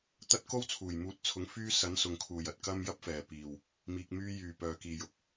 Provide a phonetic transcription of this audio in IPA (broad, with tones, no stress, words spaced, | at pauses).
t̪ɐ˥t̚ ko˥wt͡sʰuː˨˩jmuː˨˥t̚t͡sʰʊ˨˥ŋ fyː˥ sɐ˨˥nsʊ˨ŋkʰuː˨˩j ɐ˧t̚kɐ˥m jɐ˥p̚fɛː˨˩ piː˨˩w | miː˧k̚ myː˧jyː˨˩ pœː˨kiː˨jʊ˧k̚